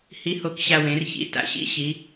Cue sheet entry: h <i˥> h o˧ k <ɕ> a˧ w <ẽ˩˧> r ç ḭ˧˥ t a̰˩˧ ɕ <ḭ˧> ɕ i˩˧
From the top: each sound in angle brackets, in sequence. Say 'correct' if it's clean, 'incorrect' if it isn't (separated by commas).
incorrect, correct, correct, incorrect